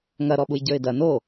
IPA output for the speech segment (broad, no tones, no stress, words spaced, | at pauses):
ŋɐ ɾɔɓujɟə˞ɪ̯dɐ no